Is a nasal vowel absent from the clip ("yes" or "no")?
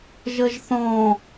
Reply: no